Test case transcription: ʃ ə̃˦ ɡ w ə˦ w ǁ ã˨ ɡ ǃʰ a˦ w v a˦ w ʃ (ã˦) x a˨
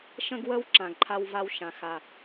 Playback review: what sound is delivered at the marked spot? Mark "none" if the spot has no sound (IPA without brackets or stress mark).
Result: ã˨